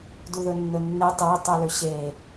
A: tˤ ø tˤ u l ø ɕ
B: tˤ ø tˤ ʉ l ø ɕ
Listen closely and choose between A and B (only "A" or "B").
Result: A